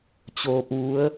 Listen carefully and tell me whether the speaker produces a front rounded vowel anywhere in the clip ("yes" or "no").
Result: no